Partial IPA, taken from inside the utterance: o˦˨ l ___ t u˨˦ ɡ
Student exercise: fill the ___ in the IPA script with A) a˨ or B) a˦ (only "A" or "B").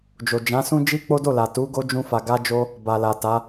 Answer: A